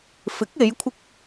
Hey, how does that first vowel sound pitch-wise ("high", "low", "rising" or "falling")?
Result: rising